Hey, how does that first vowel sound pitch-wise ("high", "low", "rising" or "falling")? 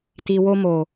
low